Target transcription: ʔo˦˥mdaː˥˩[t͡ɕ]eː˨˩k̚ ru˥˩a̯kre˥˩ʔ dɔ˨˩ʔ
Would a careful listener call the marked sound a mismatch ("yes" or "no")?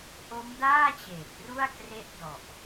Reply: no